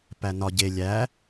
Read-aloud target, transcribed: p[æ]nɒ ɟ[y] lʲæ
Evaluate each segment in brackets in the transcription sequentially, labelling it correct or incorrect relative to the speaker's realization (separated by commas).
correct, incorrect